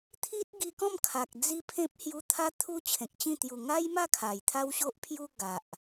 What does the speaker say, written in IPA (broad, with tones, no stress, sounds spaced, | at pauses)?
t̪ʰ i˦ t̚ ɡ i˧ k ɔ̃˥˧ m kʰ a˨ k̚ d͡z i˦ pʰ ẽ˦ p̚ h j u˧ t̪ʰ a˦ t̪ʰ u˦ t͡ɕʰ ẽ˨ k̚ t͡ɕ ĩ˥˧ t̪ j u˨˩ ŋ a˦ j m a˥˧ kʰ a˨˩ j t̪ʰ a˦ w ɕ o˦ ʔ pʰ j u˦ ɡ a˨ ʔ